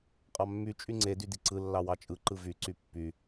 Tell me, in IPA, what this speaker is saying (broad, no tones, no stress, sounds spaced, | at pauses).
qʼ ɑ mː y t͡ʃʼ y ŋ͡ǀ e d y d i ǀ ɯ lː ɑ w ɑ t͡ʃʼ ɯ ǃ ɯ v y ǀ y pː y